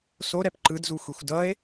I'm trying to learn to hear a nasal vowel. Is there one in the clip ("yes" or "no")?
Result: no